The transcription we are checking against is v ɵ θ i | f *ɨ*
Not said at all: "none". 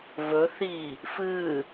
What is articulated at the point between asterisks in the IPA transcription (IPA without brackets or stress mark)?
ɨ